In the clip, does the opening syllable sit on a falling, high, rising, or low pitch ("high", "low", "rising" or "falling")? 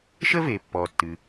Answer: high